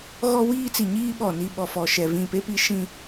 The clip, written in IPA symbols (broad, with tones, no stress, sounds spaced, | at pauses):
ɣ ɔ˦ w iː˦ t͡s i˨ ɲ iː˦ ɓ ɔ˨ n i˦˨ ɓ ɔ˨ f ɔ˨ ʃ ɛ˨ v ĩ˨ p e˦ p i˦ ʃ ĩ˦